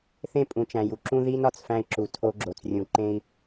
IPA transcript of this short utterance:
θẽ˦pʼũ˨t͡ʃæ̃˨ju˨ ǁũ˦ði˦n ɒ˨t͡sfæ̃˦i̯ǁu˨ tʰo˦ɡ͡ǁo˨t͡srʲũ˨ ǃẽ˦i̯

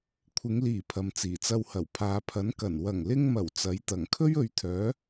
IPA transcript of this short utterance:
kʷʰɪ˨˧ŋliː˨˩ pʰɐ˨mt͡siː˨˩t͡sɐ˧whɐ˨˩w pʰaː˨pʰɐ˨˥nkɐ˨˩n wɐ˨˩ŋlɪ˧ŋmɐ˨˩w t͡sɐ˨˥jt̪ɐ˨˩ŋ kʰɵ˥ɥɵ˨˧ɥt̪ʰœː˨˥

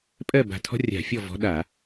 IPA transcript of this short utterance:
pʼɜ˥˨ ba̤˧˩tʰɔ̤˥rʲa̤˧˩˧ fʲɔ˥˨vɔ̤˨˥ ɗa˧˩˧

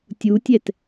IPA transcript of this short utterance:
tʲutʲɛt

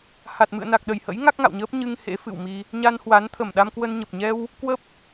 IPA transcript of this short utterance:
ha˨˩t̚mɨ̰˧˨ə̯na˨˩k̚ ɗə˧˩jhə̰˧˥j ŋa˦˥k̚ŋa̰˧˨wɲəː˦˥p̚ ɲɨ˧ŋ hḛ˧˥fɨ̰˧˨wmi˧ | ɲa˧nhwa˨˦n t̪ʰə˧˩mɗa˧mkwə˧nɲə˨˩p̚ ɲɛ˧w | kwə˦˥p̚

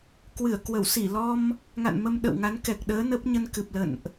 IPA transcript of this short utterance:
kwɨ˧˩ə̯kwə˧˩w si˧˩lɔ˧m | ŋa̰˧˨nmə˧m ɗə̰˧˨wŋa˨˦n kɛ˨˩k̚ɗəː˨˦ nə˦˥p̚ɲə˧nkɨ˨˩p̚lə̰˧˨nʔ

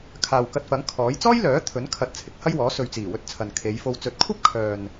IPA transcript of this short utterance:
kʰaː˨wkɐ˧t̚fɐ˨˥ŋ kʰɔː˨˥j t͡sɔː˥jlœː˨˥t̪ʰɵ˨˥n kʰɐ˧t̚t͡sʰɪ˨˥k̚ hɐ˥jwɔː˨˥ sɵ˨ɥt͡siː˨˩wɵ˧t̚ t͡sʰɐ˨nkʰe˨˧jfo˧w t͡sɵ˨t̚kʷʰɐ˥p̚kʰœː˨n

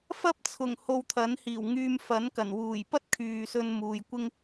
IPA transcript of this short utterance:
fɐ˥p̚t͡sʰʊ˨˩ŋho˨w t̪ʰɐ˨˥nhiː˨˩w ŋyː˧mfɐ˨˥nkɐ˨˩n wuː˨˩jpɐ˥t̚ kʰyː˨sɵ˧n muː˨jkʷɪ˥ŋ

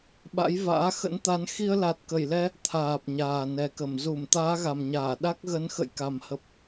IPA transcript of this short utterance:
ɓa̰˧˥jva̰ː˧˥ xə̰˧˥nt̪a˨˦n xi˧ə̯la˨˩t̚kə˧˩jlɛ˧ | t̪ʰaː˨˩p̚ɲaː˨˩nɛ˨˩kə˧˩m zu˧˩m t̪aː˨˦ɣa˨˩mɲaː˧˩ ɗa˦˥k̚ɣə˨˦n xə̰˧˨jka˨˩mhə˨˩p̚

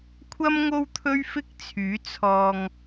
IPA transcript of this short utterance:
kʷʰɐ˥m ŋo˥wt̪ʰɵ˥ɥfɪ˥k̚t͡sʰyː˨˥ t͡sʰɔː˨ŋ

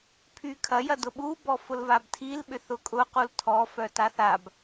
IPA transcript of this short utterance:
pʰykʰɐjɐ dʊɓubɔ fʊlvabtʰilɓʏ θʊkʼʊ qultʰɔfœ taθab

